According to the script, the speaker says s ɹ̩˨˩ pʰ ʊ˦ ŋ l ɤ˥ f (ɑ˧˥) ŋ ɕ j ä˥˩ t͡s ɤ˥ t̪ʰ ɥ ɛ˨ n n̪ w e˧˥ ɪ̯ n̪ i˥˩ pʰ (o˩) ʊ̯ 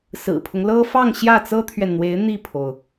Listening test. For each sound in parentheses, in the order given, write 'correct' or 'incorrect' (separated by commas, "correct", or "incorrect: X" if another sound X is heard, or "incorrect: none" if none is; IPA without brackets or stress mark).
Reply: incorrect: ɑ˥˧, correct